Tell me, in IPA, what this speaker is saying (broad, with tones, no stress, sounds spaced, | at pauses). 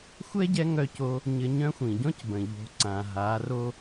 xʷ ɛ˥ ɟ ɛ˧˥ ŋ œ˧ c o˧ | ɲ ə˧ ɲ œ̃˧˥ xʷ ĩ˩ ɟ ɔ̃˥ c b ə̃˩ ʎ o̤˩˧ ǀ ã˩ ɦ a˩˧ r o˧